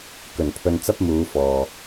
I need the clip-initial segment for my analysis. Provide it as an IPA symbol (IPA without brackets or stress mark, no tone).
k